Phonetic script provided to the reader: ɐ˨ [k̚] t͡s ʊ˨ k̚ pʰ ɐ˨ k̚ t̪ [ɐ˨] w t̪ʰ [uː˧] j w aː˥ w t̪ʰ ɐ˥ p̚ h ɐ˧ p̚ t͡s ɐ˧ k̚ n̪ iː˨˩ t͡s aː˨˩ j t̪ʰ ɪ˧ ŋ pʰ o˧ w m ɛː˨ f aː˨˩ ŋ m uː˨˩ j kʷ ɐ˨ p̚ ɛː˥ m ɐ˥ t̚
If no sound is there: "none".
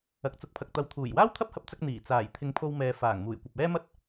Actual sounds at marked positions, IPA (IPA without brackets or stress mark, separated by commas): k̚, ɐ˨, uː˨˩